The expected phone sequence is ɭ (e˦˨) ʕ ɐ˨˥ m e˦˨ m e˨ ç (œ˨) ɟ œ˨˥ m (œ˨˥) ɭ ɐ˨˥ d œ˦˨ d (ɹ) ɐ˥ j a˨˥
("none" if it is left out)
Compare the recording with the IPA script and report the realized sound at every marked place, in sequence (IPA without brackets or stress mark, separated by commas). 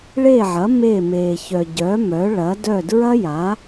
e˦˨, œ˨, œ˨˥, ɹ